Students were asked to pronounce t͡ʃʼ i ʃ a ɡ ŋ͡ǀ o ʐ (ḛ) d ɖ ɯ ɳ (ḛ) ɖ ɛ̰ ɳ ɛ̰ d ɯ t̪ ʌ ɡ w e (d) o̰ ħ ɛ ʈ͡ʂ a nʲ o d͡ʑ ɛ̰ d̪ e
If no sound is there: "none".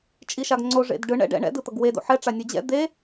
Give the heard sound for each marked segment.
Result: ḛ, ɛ̰, d

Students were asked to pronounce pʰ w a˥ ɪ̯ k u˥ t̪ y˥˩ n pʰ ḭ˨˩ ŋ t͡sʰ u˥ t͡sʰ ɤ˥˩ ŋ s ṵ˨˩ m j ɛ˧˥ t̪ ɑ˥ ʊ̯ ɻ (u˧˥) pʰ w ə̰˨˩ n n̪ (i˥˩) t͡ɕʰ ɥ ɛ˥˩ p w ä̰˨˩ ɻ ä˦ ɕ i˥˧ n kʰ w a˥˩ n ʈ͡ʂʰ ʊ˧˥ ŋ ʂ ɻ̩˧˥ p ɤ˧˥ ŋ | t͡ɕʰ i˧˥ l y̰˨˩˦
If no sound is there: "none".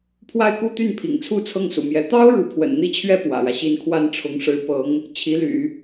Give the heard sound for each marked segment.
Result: u˧˥, i˥

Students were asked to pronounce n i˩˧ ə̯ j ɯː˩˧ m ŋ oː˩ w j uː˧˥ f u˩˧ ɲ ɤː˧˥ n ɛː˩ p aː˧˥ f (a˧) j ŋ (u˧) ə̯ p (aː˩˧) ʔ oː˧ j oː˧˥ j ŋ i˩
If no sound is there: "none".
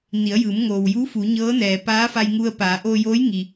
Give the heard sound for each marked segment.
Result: a˧, u˧, aː˩˧

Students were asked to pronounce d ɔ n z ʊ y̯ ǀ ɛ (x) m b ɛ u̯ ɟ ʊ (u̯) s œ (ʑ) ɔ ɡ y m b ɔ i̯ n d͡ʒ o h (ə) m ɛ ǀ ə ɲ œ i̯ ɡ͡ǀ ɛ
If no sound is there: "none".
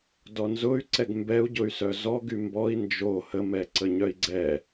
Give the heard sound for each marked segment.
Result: ɡ, y̯, z, ə

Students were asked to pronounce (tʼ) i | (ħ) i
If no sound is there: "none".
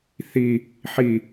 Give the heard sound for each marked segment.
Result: θ, ħ

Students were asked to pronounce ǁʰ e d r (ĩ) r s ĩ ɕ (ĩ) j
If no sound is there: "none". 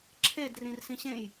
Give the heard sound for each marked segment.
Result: ĩ, ẽ

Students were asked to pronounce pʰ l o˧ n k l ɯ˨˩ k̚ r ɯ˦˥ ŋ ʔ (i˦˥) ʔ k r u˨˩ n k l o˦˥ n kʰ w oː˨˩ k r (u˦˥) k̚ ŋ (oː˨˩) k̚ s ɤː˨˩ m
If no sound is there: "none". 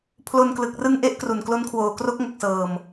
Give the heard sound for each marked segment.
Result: e˦˥, o˦˥, o˨˩

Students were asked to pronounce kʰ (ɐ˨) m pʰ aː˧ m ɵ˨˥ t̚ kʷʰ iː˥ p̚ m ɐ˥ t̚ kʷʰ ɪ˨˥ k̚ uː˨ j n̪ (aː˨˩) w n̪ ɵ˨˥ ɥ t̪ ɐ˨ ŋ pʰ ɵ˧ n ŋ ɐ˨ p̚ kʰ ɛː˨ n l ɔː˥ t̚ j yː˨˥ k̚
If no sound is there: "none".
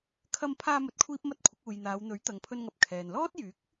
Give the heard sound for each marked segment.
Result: ɐ˧, aː˨˧

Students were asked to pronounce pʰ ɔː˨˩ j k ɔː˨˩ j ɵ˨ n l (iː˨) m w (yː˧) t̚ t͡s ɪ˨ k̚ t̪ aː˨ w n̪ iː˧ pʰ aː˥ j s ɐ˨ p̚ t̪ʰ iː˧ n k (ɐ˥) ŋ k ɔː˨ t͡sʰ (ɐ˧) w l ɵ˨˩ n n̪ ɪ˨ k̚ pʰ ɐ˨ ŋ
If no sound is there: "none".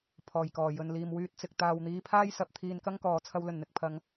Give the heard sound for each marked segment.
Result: iː˨, yː˧, ɐ˥, ɐ˧

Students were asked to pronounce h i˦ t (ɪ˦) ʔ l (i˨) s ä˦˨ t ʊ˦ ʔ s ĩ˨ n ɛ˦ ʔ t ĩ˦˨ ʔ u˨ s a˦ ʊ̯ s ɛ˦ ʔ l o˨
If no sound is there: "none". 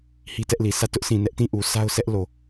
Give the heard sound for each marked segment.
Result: ɛ˦, i˨

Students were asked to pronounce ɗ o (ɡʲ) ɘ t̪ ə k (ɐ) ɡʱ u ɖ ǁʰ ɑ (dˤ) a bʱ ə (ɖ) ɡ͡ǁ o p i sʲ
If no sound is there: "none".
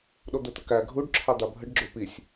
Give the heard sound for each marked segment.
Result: d̪, æ, d̪, ɖ

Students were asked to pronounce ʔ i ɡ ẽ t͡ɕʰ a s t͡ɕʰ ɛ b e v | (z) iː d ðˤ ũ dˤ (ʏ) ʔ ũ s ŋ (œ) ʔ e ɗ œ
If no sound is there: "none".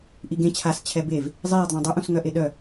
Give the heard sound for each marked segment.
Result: zˤ, ʏ, œ

